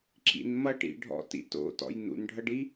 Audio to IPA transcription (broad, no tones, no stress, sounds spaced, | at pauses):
ǁ ḭ n m ʌ ʈ ḭ ɖʱ ɔ̰ t ḭ t o̰ t ɔ̰ j n ṵ n ɖʱ ʌ ɖ i